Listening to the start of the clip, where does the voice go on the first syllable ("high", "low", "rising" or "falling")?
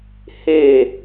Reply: falling